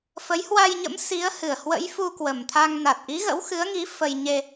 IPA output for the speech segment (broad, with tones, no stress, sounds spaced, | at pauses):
f ə˨˦ j h w a˧ j ɲ ə̰˧˥ m s i˨˦ ə̯ h ɨ˨˩ ə̯ h w ə̰˧˥ j f u˧ k w ə˨˩ m t̪ʰ a˧ ŋ n a˨˩ t̚ ʔ i˨˦ ɣ ə̰˧˥ w x ɨ˨˦ ə̯ ŋ i˨˦ f ə˧ j ɲ e˧